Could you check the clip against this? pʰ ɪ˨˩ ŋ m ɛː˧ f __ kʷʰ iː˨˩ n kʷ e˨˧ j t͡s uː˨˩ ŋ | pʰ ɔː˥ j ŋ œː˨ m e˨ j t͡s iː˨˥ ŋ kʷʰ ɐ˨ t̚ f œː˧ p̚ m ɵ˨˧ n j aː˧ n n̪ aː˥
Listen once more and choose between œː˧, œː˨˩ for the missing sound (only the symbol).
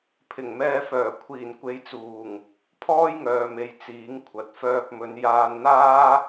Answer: œː˨˩